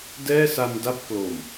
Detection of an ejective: absent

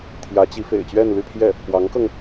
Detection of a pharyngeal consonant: absent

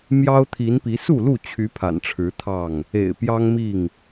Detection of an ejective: absent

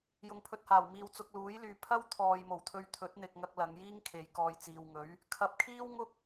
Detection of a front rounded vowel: present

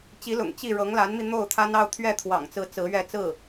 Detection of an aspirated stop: present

